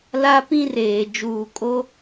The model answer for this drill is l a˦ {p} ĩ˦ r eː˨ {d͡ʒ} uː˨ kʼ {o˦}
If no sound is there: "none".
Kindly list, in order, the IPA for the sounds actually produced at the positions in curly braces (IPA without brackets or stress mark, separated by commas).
p, d͡ʒ, o˦